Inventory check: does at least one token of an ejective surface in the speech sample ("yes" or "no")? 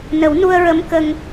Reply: no